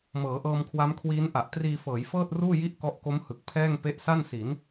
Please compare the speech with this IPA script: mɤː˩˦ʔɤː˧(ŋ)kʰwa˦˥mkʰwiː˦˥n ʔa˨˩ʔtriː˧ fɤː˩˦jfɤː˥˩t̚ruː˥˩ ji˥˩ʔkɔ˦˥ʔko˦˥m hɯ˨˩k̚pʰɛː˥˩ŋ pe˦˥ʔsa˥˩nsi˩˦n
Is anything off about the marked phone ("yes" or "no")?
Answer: yes